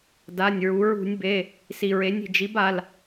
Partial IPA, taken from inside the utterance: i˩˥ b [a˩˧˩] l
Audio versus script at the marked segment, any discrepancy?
no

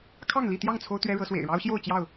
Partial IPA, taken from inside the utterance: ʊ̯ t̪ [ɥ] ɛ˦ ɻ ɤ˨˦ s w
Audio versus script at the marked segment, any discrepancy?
no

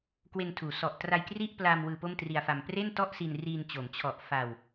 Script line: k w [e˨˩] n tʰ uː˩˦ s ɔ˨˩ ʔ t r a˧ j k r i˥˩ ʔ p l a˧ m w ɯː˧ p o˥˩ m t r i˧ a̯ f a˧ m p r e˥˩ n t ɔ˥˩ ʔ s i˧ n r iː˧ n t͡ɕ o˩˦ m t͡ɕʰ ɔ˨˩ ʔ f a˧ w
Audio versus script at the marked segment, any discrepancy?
yes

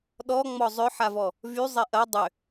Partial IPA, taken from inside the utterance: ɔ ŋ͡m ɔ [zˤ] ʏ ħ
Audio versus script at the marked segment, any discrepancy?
no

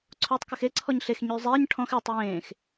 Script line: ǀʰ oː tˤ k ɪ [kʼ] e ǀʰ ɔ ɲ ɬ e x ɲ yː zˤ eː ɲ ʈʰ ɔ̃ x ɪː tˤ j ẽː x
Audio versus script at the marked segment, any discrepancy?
yes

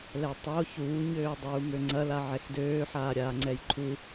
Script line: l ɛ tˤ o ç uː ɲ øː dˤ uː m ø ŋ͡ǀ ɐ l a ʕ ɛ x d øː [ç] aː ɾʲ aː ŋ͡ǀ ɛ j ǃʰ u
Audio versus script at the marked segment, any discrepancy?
yes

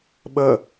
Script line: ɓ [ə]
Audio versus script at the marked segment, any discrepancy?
no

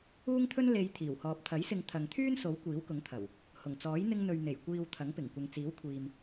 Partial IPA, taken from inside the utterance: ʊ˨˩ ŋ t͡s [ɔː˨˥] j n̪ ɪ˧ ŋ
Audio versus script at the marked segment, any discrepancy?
no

